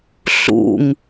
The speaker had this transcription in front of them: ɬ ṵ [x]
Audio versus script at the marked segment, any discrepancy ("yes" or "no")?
yes